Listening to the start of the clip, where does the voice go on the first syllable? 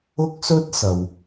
high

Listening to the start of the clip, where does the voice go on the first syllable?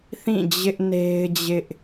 falling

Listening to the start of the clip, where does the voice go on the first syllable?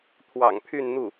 low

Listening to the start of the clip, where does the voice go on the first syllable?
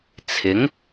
rising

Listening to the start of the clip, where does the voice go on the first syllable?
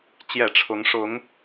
low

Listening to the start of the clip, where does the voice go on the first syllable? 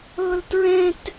high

